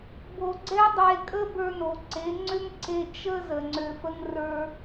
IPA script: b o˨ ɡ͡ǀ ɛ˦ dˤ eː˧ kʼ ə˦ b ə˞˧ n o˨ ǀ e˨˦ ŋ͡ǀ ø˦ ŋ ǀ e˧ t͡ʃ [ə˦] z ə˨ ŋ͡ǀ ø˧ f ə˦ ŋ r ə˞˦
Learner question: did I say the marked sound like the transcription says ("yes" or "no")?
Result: yes